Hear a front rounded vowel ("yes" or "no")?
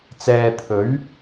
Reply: no